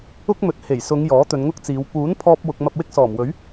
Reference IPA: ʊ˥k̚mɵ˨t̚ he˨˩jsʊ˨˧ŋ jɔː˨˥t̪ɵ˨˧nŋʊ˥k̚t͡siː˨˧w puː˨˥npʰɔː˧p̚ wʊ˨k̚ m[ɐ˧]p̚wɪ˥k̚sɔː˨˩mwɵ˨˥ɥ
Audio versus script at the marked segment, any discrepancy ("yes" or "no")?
no